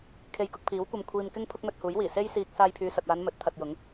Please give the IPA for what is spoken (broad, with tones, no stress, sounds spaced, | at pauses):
kʰ e˧ j k ʊ˧ k̚ pʰ iː˨˥ w kʷ ɐ˧ m kʷʰ iː˧ m k ɪ˥ ŋ pʰ ʊ˥ k̚ m ɵ˧ t̚ h uː˨˥ j w iː˨˩ s e˥ j s iː˧ k̚ s aː˧ j pʰ yː˨ s ɐ˨ t̚ aː˨˧ n m ɵ˨˥ t̚ t̪ʰ ɐ˧ t̚ j ʊ˨˥ ŋ